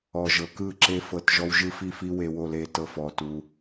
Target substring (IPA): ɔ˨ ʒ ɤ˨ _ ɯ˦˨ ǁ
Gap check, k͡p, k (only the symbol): k